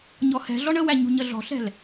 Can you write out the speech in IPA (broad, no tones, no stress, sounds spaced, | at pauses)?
ɲ ɔ h ɛ̤ ɮ ɔ ɳ ə w æ ɲ ṳ ɲ ə ɮ ɔ̤ ɬ ɛ̤ l